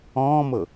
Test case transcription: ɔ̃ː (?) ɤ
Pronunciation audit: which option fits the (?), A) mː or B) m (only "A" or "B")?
B